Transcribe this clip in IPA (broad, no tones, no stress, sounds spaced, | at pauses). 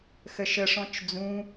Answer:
x ə ʃ ə ʂ ɔ̃ t͡ʃ d͡z ũ